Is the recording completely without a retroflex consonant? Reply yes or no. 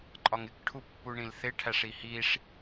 no